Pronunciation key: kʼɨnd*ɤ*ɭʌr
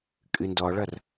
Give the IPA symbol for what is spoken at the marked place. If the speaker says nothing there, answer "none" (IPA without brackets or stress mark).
ɔ